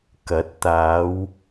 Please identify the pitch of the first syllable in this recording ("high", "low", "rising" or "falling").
rising